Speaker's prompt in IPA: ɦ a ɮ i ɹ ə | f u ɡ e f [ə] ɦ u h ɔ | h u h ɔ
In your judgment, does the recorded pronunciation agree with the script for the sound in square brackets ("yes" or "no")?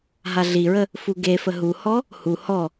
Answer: yes